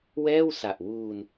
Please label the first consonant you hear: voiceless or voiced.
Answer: voiced